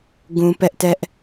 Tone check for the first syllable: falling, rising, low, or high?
high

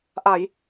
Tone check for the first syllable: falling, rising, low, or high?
low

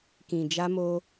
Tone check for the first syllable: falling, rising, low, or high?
low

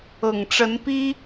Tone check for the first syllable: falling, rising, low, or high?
low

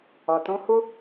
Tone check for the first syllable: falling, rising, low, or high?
low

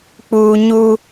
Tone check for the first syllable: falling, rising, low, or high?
high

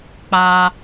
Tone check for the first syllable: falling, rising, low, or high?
high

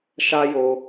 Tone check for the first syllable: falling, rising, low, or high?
high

